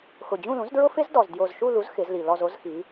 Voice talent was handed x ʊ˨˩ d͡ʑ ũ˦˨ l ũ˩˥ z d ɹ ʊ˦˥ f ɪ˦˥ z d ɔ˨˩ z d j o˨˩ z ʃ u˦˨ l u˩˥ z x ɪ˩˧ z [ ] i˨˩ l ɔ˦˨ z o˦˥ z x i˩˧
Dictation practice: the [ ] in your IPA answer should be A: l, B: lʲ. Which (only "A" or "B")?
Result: A